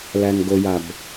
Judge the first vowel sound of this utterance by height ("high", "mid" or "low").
low